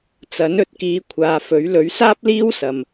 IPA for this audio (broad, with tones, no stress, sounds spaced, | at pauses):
t͡s ɐ˨˥ n ɵ˨ t̚ k iː˧ kʷʰ aː˨ f ɵ˨˥ ɥ l ɵ˨˥ ɥ s aː˥ p̚ l iː˥ w s ɐ˨ m